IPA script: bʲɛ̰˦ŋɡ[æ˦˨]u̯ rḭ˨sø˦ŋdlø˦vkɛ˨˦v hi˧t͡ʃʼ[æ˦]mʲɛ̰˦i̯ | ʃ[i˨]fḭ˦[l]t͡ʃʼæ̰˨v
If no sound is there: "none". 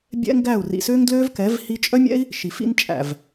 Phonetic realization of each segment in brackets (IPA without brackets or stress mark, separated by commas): æ˦˨, œ˦, i˨, n